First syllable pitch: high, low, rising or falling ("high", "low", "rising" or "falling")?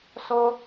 high